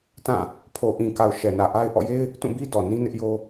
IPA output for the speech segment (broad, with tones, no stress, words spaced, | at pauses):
tã˦˨ | pʰo˨ʔĩ˨ka˨ʊ̯ ʃɛ˨nä˨ʔa˦ɪ̯ ʔɔ̰˦˨je˦ɪ̯ | tũ˦˨bi˦ dɔ˨nĩ˦nɪ˦ʔjo˦